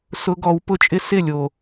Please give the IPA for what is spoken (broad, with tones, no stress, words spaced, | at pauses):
sʊ˧˥˧ɡɔ˨˦wpʊ˥t͡ʃʼɪ˥ sɪ˥˩lʲo˨˩